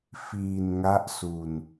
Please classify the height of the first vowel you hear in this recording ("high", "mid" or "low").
high